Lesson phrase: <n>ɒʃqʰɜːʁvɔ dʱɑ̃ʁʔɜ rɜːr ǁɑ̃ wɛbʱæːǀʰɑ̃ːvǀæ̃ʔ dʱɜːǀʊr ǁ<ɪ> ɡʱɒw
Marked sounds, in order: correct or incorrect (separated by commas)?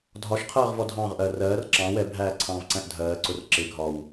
incorrect, correct